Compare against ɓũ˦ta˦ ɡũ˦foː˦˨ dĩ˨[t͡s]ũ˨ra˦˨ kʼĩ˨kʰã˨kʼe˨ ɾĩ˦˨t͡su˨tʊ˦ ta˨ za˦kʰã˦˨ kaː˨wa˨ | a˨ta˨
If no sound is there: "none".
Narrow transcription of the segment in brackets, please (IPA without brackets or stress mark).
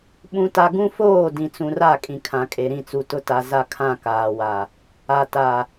t͡s